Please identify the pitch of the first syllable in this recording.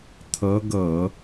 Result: rising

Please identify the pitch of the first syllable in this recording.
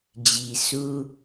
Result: low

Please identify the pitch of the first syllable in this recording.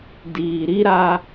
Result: low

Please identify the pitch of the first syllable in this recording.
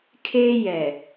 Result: high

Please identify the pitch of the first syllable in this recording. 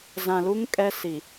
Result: low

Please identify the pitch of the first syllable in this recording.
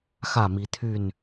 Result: falling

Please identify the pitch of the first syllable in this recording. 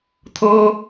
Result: high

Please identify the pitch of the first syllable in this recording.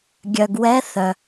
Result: low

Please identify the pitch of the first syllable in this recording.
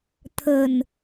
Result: low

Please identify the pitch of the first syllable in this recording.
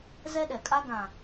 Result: high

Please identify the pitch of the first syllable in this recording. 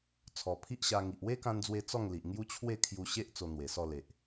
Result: low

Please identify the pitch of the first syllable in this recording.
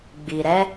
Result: low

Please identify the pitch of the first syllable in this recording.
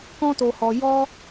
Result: high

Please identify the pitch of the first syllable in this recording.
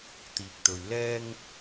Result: low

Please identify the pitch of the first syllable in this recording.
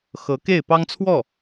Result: rising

